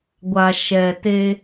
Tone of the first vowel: low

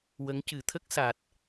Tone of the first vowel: rising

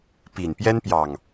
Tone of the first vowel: low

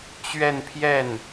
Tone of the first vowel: falling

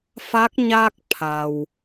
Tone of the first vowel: rising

